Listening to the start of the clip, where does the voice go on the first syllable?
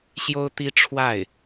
high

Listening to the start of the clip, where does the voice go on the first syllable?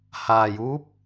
low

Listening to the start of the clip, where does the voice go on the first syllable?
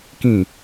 falling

